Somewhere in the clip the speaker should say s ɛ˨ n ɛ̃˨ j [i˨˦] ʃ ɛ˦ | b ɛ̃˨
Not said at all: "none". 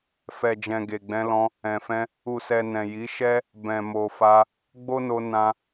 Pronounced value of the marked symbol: i˨˦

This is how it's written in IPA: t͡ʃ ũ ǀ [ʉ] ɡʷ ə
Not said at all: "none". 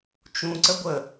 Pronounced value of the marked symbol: ə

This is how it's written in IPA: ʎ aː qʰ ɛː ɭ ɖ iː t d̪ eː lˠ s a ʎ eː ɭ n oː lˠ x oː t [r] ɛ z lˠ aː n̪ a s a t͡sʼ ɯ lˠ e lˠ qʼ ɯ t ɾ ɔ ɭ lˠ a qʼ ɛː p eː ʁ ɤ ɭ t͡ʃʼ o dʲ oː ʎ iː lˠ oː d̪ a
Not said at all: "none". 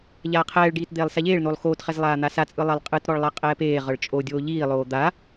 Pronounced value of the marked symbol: χ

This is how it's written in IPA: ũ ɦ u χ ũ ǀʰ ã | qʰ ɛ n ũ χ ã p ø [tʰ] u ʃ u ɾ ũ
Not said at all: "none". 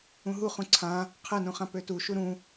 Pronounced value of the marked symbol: t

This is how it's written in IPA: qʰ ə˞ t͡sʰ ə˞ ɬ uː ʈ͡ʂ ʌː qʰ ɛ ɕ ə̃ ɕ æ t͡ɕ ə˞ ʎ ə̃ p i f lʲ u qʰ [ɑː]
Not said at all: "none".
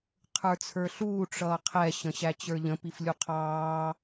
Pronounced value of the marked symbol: ɑː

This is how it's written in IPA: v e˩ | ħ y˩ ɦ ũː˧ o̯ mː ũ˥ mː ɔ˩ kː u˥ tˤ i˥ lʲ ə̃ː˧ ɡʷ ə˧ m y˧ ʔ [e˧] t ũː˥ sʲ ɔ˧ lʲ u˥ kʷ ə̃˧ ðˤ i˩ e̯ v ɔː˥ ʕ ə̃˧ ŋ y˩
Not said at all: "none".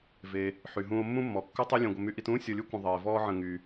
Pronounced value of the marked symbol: i˧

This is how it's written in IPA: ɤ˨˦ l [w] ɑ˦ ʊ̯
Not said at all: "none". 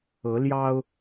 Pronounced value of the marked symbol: j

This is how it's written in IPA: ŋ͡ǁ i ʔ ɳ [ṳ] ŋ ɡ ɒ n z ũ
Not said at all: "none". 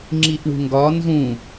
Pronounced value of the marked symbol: ṳ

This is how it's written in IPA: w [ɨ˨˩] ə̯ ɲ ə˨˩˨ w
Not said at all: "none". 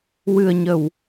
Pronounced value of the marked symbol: ɨ˨˩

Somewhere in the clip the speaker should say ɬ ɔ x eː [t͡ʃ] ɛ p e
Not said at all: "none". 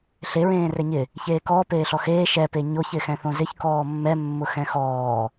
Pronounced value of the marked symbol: ʃ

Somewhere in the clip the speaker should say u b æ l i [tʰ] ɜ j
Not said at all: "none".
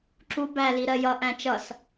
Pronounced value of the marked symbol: ɾ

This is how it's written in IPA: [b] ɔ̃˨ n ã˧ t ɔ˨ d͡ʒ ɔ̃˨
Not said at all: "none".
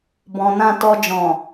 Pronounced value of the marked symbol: b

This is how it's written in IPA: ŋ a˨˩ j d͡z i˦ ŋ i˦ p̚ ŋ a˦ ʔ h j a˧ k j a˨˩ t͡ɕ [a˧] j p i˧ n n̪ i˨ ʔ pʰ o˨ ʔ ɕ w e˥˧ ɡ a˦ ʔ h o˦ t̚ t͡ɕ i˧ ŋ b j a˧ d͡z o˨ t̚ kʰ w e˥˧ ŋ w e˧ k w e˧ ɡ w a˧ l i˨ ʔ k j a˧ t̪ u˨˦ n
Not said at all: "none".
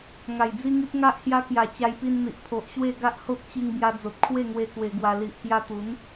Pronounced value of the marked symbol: a˧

